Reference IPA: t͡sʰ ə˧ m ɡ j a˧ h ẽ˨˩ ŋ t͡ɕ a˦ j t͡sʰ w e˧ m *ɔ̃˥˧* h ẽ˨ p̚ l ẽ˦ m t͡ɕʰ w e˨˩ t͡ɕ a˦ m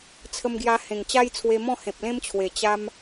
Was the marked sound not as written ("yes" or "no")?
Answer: no